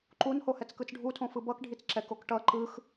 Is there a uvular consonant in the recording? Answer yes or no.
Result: no